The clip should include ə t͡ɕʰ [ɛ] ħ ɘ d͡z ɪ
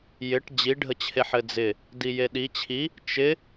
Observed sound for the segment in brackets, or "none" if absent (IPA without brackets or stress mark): e